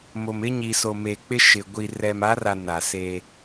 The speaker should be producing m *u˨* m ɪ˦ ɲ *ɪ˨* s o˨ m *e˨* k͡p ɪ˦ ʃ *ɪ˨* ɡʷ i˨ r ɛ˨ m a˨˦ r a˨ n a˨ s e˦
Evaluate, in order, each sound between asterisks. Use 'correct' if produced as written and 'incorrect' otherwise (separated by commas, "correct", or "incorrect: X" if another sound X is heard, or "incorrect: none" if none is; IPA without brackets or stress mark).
incorrect: o˨, incorrect: i˨, correct, correct